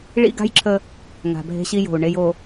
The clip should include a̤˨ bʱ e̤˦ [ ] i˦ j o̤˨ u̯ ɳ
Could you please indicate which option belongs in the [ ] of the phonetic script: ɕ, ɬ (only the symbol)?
ɕ